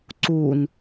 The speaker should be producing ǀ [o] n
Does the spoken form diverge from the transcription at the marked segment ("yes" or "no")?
yes